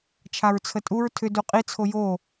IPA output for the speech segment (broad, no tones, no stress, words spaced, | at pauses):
t͡ʃʰaɹt͡sʰətʼuɹ tʰʏ duqʼi t͡sʰojo